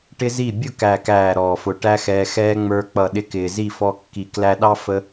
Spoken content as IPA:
ʈɪ˦zi˦˨ bʲʊ˦˨ kæ˨kæː˨ ɾɔː˨fʊ˨ ʈæ˦xɛː˧xɛː˦ ŋ͡mə˞˦ k͡pʌ˨ɗɪ˧ kɪː˨zi˦˨fɔ˧kːi˨ klæ˧ɗɑ˦ fə˦

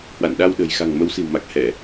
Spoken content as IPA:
hwa̰˧˨nɗa˧wɗə̤˨˩j xa̤˨˩ŋmə˨˦wsi̤˨˩wma˨˩k̚ hɛ˧˩˨

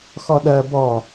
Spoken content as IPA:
xɔɗɜ bɔ

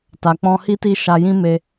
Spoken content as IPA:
ta˨k͡pɔ̃˧ hi˦ti˦ʃa˧jĩ˦ me˧

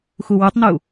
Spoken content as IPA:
xuwutˤnu

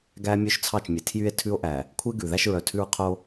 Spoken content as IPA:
ɡæ˦ mʲø˦ʃt͡sʰɑ˦˨t͡ʃmʲe˨ tʰjy˦e̯ tʰʉ˦o̯ʔæ˨ | kʷʰe˦ ɡʉ˨ ðæ˦ʃɹœ˨tʰʉ˦ɹqʰo˦

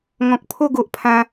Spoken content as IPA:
ŋɔ̃˨k̚pʰo˥˧ ɡo˨ʔpʰã˧

